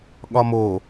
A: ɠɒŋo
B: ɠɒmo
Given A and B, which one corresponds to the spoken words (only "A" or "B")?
B